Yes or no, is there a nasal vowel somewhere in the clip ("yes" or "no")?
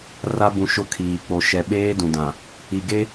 yes